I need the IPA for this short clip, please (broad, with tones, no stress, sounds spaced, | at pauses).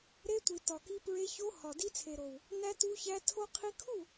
ɾ e˧ tʷ i˨ t ɒ˨ k i˧ p ɹ e˧ ç o˧ h ɒ˨ d i˧ t͡sʰ e˨ ɾ o˨ w | n æ˧ t u˧ ç æ˧ tʰ o˦ qʰ i˧ kʰ u˦˨